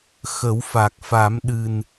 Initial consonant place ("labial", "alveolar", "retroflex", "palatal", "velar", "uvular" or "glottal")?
velar